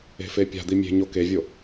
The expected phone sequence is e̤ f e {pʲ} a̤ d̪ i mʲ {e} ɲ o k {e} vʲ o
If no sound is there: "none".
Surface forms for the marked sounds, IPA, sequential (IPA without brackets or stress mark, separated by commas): pʲ, e̤, e